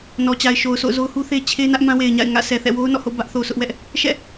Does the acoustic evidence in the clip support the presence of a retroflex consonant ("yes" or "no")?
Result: no